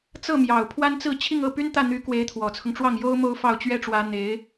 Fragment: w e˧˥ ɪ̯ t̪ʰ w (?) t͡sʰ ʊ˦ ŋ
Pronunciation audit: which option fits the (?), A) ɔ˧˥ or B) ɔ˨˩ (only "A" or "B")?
B